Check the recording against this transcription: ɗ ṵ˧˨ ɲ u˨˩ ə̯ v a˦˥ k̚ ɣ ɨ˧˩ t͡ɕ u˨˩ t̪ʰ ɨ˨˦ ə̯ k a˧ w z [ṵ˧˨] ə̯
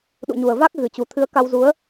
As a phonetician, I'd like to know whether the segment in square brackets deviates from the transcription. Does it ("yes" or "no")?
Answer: yes